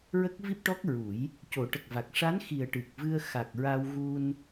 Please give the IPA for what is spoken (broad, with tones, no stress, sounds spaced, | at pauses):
ɹ ə˦˥ k̚ v i˦˥ p̚ ʈ ɔ˦˥ k̚ ɹ u˨˩˦ j | c o˨˩˦ ʈ ə˨˩ k̚ v a˨˩ k̚ ʂ a˧˥ n x i˨˩ ə̯ ʈ ɨ˨˩ k̚ v ɨ˧ ə̯ x a˨˩ k̚ ɹ a˧ w ɣ u˧ n